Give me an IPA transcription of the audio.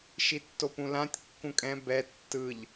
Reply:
ʃ i tː o p ũ l ã tʲ kː ũ kʼ ɛ̃ b ɛ tː ɯ ʎ

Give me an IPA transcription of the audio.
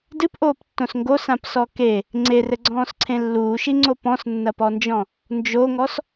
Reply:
d ɨ p ʔ oː p tː õ s ŋ ɡ o s ã p s ɔ k e | ŋ͡ǀ e r ɘ ɡ͡ǀ ɔ̃ː s ǀʰ ẽ lː uː ʃ i ŋ͡ǀ o p ɔ̃ s nː ɐ p ɔ n d͡ʒ ɔ̃ | n d͡ʒ o ŋ ɔ s

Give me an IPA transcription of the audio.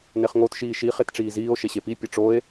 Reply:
n e χ ŋ o t ʃ iː ʃ i χ e t ʈ͡ʂ iː z iː o̯ ʃ e ɕ e p i pʲ ʌ ʈ͡ʂ o e̯

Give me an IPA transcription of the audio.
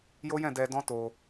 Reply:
j o˦ j ɛ̃˦˨ d ɛ˧ d ɔ̃˦ t o˧

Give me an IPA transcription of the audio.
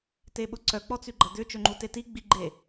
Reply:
t e ɓ ʊ ǀ œ k͡p ɔ t͡s y ɡ͡ǃ ɐ d̪ ʏ t͡ʃ ø ŋ͡ǃ u t e t i ɡ͡b i ɡ͡ǃ e

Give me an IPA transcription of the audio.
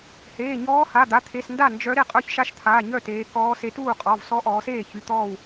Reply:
h eː˩˧˩ ɲ ɔː˧˥ h a˩˧˩ d̪ a˩˧˩ t̪ʰ e˩˧˩ s n d a˥˩ n d͡ʒ œ˧˥ ɾ e˧˩ qʼ œ˧˥ ç ʃ a˧˥ ʃ t̪ʰ aː˩˧˩ ɲ œ˥˩ t eː˩˧ k ɔː˧˥ s e˧˥ t uː˥˩ qʼ ɔ˩˧˩ v s ɔ˧˥ ʔ ɔː˩˧ s eː˥˩ ç y˩˧˩ t̪ ɔː˥˩ w

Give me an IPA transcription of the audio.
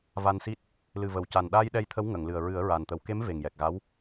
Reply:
v a˧ n s i˦˥ t̚ | l ɨ˨˩ v ə˨˩ w c a˨˩ n ɗ aː˧ j ɗ ɛ˧ j t̪ʰ ə˧˥ w ŋ ə˨˩˨ ŋ l ɨ˨˩ ə̯ ɹ ɨ˨˩˦ ə̯ ɹ a˨˩ n t̪ ə˨˩˦ w k e˧˥ m v e˨˩ ŋ j ɛ˨˩ k̚ ɣ a˧˥ w

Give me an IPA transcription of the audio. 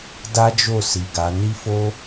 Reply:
d a˦ d͡ʒ o˦˨ s i˨ ɡ a˨˦ n i˦ f o˦

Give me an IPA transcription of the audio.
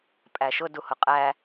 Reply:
pʼ æ ʃ ʊ d u h ʊ qʼ æ

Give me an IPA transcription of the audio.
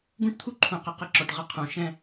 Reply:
ɡ ũ˦ ʈ t̪ʰ u˦ ǃʰ ũ˨ q ɘ˨ q ə˦ ǁ ɔ˨ ʈ ʁ ə˦ qʰ ũ˨ ʃ ɛ̃˦

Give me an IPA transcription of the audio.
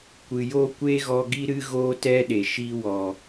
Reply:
kʷ ɨ˨ j oː˦ kʷ eː˦ ɣ ɔ˧ ɡ i˦ ɾ ɨ˦ ɣ oː˦ t ɛ˦ ɗ e˨ ʃ i˧ w ɔ˨

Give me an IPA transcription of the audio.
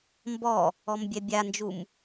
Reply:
m b ɔ | ɔ m bʲ ɛ bʲ a n d͡ʒ u m

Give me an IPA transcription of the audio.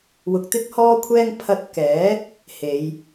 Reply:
w ʊ˧ k̚ t̪ ɪ˥ k̚ h ɔː˥ kʷʰ ɛː˥ ŋ pʰ ɐ˧ t̚ k ɛː˨˥ | h e˨˧ j

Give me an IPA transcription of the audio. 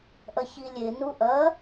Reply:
ʔ ɐ ç i lʲ e n u ʔ ɐ

